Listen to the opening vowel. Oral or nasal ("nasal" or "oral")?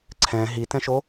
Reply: nasal